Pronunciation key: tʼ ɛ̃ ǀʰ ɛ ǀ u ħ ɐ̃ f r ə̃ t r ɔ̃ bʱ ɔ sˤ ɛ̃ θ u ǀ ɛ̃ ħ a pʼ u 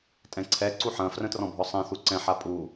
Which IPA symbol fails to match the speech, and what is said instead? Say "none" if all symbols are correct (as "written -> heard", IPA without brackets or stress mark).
none